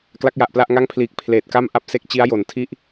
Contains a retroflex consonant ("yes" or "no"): no